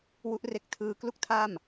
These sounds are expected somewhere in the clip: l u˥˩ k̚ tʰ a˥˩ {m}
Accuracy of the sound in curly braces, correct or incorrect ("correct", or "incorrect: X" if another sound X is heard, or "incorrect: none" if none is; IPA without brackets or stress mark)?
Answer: correct